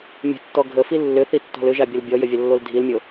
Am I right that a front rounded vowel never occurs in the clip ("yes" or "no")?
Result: no